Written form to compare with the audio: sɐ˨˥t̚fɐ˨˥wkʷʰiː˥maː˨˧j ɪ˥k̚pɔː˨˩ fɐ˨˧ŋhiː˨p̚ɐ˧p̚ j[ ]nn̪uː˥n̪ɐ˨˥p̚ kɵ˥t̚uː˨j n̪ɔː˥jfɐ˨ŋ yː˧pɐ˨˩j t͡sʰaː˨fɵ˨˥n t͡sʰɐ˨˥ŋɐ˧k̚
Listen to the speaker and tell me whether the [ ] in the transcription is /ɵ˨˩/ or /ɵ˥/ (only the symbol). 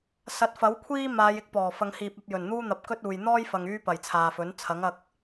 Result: ɵ˨˩